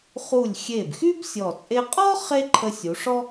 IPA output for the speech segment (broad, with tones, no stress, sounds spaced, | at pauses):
χ u˧˩ lʲ xʲ e˧˩ b x y˥ b sʲ ɔ˧˩ t͡sʼ e˥ qʼ ɔ˥ χ e˥ ǃʰ ə˧ sʲ u˩˧ ʂ ɔ˥